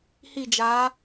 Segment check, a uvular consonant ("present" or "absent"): absent